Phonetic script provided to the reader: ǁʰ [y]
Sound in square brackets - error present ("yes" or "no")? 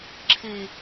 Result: yes